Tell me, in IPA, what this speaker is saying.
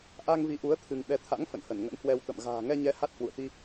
ʔ a˧ ŋ v i˨˦ ʔ u˨˦ ə̯ t̪ʰ ɨ˧ ŋ ɓ ɛ˨˦ t̪ʰ a̰˧˥ ŋ f ə̰˧˨ n h ə˧˩ n ŋ ə̰˧˥ n h w ɛ˧ w t̪ ə̰˧˨ m ɣ a̤ː˨˩ ŋ ɛ˧ ɲ ɛ˨˦ h a˦˥ t̚ h w ṵ˧˨ ə̯ t̪ i˧

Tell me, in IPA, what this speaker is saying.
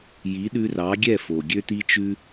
j i˩˥ ɗ ʉ˧ r ɑ˩˥ ɡʲ ɛ˥˩ f o˩ ɡʲ ø˧ t i˧ t͡ʃ ʉ˧

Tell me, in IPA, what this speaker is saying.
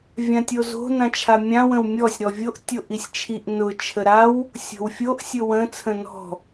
vʲ ã tʲ o z o̤ n ã t͡ʃʰ a mʲ ã w ə̃ w mʲ ɔ sʲ ɾ ɔ vʲ o ʔ tʲ o ʔ i sʲ t͡ʃʰ i ʔ n ʊ t͡ʃʰ ə ɾ a w | sʲ o̤ w fʲ o ʔ sʲ ʊ w ə̃ t͡sʰ ə̃ n ɔ̤

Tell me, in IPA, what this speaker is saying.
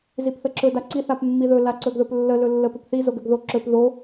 z i p θ ə ǁ ɵ d a ǀ i θ a p mː i ð ɵ l a ǀ ɵ ɡ ð ɵ p lː ə l ɵ lː ə p ɵ p θ i z o ɡ ə ɡ ð o ǁ ɵ p ð o

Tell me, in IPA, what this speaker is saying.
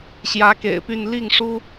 ɕ j ä˧˥ k ḛ˨˩ ɪ̯ p y˥˧ n l i˥˩ ŋ ʂ u˥

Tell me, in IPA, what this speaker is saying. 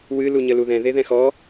w ɨ l u ɲ ə l u ð ɛ̃ ð e ð ɛ̃ x ɔ

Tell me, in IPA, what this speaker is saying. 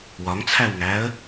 w ɒ ŋ t͡sʰ æ w ŋ æ ə̯

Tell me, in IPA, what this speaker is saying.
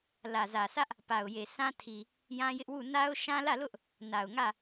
l ä˨ z ä˨ sʰ ä˦ ʔ | p a˨ ʊ̯ j e˨ sʰ ã˦ tʰ i˨ | j ã˦ j ɪ˦ ʔ w u˦˨ n a˦ ʊ̯ ʃ ã˦ l ä˦˨ l ʊ˦ ʔ | n a˨ ʊ̯ ŋ ä˦˨

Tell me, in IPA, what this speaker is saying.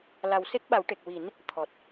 l a˨˩ w s e˦˥ k̚ ɓ a˨˩˦ w ʈ e˨˩ k̚ w i˨˩˦ n | t̪ʰ ɔ˨˩ t̚

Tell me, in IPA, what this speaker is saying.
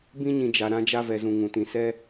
b ĩ˧ ɲ ĩ˨ d͡ʒ a˨ ɾ ã˧ d͡ʒ a˧ v ɛ˨ z ũ˨ ŋ ũ˨ t ĩ˨ s ɛ˧

